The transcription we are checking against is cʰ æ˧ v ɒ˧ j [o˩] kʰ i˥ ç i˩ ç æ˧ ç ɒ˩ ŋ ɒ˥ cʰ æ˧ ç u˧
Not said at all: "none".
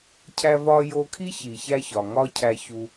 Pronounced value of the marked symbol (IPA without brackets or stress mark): o˧